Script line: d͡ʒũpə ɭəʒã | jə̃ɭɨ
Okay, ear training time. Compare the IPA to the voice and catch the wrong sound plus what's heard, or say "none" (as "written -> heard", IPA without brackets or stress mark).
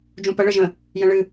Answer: ã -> ə̃